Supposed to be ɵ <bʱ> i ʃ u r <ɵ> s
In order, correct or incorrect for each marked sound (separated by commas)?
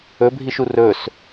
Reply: correct, correct